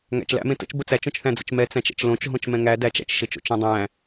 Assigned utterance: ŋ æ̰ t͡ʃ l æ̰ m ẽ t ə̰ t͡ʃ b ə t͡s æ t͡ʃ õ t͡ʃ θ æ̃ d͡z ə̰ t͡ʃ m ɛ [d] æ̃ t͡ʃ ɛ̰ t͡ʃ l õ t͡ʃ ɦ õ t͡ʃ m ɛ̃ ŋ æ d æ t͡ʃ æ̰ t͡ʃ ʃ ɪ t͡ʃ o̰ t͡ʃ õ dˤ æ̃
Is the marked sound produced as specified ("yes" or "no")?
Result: no